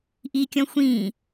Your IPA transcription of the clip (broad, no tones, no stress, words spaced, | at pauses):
ʔikʲɔ̃ xʷĩː